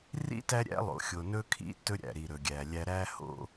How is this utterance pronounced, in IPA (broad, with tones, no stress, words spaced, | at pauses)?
rḭ˦ tæ˦ɾʲæ̰˦lˠo̰˨ xʲo˨nɵ˦kʰḭ˦ tɵ˦ɾʲæ̰˨ɾi˨ ɾɵ˨ɡʲæ˨lʲæ˦ ɾæ˦ho̰˦